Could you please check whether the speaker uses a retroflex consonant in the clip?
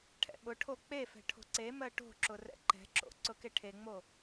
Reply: yes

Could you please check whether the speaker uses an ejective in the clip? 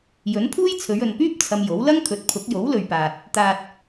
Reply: no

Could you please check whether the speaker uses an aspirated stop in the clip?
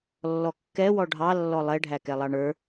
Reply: no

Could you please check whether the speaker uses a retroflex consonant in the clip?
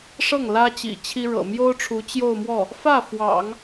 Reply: yes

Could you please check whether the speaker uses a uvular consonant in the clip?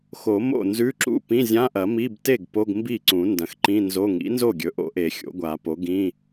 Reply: no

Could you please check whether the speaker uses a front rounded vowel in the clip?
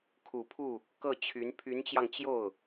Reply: yes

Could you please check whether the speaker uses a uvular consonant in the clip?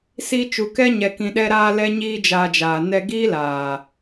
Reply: no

